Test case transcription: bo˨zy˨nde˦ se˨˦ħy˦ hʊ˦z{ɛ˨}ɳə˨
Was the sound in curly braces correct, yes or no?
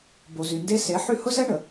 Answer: no